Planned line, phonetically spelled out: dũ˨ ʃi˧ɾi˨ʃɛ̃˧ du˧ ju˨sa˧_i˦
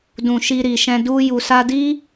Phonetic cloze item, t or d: d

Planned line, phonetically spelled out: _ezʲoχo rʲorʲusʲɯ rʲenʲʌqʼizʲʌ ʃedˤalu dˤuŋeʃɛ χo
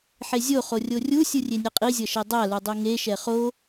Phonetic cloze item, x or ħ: ħ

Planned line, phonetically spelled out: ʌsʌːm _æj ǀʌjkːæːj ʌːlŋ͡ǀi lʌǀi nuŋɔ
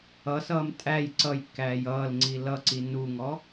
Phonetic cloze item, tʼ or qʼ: tʼ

